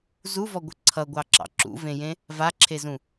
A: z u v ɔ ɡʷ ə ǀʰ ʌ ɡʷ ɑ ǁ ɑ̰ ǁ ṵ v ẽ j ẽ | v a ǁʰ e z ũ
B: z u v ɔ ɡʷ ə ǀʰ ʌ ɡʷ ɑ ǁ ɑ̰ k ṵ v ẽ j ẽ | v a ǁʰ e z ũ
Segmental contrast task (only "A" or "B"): A